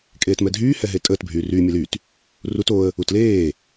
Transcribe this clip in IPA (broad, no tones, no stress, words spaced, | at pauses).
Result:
kʼeːtmɛdʱyː hɛɦetʼəːt bʱyːryː mʲɛlyt | rut oə̯ | utleː